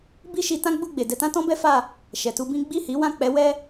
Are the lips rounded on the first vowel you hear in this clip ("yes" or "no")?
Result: no